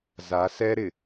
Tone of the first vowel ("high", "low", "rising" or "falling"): rising